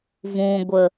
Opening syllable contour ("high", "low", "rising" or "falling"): low